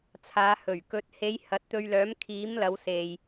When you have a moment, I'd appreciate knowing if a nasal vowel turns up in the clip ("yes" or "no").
no